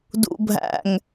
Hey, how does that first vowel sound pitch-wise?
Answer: low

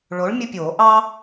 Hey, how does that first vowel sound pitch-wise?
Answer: rising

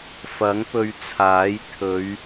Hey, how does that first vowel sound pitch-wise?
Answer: rising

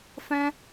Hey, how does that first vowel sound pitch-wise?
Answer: high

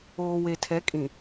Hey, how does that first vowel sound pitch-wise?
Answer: low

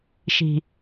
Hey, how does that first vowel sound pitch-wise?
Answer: low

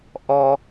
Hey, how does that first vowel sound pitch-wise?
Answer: high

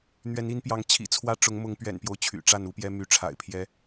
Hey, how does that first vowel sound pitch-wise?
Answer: rising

